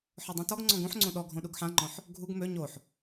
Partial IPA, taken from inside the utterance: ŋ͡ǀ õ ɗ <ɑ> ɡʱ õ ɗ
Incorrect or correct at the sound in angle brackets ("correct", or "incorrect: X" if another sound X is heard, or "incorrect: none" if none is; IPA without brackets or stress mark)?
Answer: incorrect: ɔ